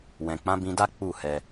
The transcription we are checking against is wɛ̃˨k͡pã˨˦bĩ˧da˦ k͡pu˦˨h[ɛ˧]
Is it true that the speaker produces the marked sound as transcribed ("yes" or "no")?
yes